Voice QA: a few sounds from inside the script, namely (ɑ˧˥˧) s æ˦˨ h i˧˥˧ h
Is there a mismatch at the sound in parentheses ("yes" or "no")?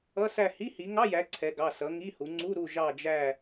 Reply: yes